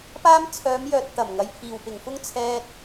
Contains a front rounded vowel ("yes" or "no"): yes